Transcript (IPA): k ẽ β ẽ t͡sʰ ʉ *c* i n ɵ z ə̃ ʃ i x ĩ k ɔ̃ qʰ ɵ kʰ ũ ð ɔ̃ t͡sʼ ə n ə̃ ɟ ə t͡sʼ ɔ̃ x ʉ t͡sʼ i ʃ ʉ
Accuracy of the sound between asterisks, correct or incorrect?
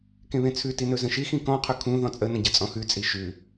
incorrect